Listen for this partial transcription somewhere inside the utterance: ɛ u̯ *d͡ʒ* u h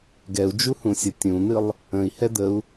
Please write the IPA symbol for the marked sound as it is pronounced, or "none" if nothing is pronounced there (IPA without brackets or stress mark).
d͡ʒ